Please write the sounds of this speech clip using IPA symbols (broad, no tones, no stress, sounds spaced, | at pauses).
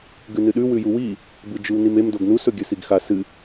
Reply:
ɡ ʉ n ɨ ɗ ʉ w ʉ j u w i | b ɨ d͡ʒ ɨ w n i m e m d o ɡ n u s ɵ ɡʲ ɵ s i ɡ x a s ɨ